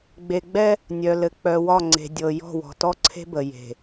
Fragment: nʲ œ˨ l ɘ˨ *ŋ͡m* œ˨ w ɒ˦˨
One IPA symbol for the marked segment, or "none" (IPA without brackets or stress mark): k͡p